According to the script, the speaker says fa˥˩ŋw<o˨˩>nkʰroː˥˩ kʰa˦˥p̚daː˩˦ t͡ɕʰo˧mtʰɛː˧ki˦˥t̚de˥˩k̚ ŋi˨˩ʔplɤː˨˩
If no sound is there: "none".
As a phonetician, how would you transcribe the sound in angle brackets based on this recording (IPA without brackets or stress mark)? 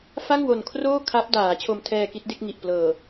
o˨˩